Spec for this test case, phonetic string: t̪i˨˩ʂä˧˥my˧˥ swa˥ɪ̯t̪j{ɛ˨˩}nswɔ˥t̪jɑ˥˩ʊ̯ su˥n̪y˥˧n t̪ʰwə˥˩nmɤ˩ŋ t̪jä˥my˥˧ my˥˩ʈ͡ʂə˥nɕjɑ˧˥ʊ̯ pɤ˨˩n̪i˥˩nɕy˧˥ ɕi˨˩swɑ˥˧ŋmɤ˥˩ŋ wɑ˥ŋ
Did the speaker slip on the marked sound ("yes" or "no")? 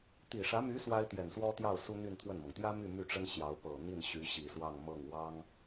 no